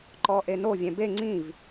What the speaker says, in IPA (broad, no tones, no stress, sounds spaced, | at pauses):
ǃ ɔ ʔ e n o vʲ ɛ̃ b e ŋ͡ǀ ĩ v